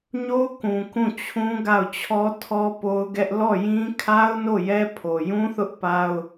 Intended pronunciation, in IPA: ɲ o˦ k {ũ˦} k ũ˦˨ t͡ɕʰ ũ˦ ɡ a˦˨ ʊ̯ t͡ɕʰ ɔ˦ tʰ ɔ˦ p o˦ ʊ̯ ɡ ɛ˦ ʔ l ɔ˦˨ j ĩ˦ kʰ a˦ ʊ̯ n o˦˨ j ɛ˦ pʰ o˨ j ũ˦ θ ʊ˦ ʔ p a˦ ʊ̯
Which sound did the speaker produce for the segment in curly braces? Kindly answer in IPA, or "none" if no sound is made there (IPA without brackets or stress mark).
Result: ũ˨